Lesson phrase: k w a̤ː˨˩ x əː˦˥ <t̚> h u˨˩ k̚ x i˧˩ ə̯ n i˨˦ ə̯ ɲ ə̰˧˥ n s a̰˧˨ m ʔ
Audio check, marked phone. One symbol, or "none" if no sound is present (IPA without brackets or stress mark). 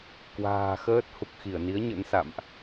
t̚